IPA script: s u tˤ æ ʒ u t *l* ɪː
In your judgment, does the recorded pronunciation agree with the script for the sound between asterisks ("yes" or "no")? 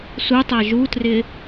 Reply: no